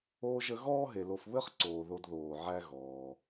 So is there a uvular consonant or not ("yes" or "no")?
yes